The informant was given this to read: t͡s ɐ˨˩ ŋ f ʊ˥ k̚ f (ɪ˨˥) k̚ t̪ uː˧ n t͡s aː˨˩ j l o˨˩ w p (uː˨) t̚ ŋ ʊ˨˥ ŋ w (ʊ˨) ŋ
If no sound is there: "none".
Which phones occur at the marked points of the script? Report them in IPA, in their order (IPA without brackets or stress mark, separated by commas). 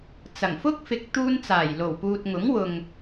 ɪ˨˥, uː˨, ʊ˨